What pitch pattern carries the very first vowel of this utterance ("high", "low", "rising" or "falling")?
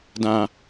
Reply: low